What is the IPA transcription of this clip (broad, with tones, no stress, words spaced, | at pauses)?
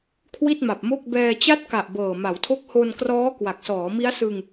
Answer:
kʰwi˥˩t̚ma˨˩p̚mo˥˩k̚bɛː˧ t͡ɕa˦˥t̚ka˨˩ʔ bɤː˨˩ma˩˦wtʰo˦˥k̚ ho˧nkrɔː˦˥ kwa˨˩k̚sɔː˩˦mi˦˥a̯sɯ˧ŋ